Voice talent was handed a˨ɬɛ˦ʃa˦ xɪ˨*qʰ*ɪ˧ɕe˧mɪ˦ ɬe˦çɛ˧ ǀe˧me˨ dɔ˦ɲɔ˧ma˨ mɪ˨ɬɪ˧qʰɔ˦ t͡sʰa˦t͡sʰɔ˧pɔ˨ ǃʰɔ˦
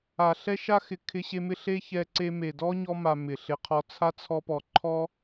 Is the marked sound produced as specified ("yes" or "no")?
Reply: no